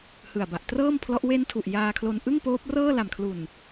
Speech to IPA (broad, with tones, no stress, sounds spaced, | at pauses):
h ɯ˨˩ a̯ b a˨˩ ʔ t r ɤː˥˩ m pʰ l ɔ˦˥ ʔ w e˦˥ n tʰ u˨˩ ʔ j aː˧ kʰ l o˧ n ʔ ɯ˥˩ ŋ p oː˦˥ p̚ r ɤː˥˩ l a˨˩ m kʰ l u˨˩ n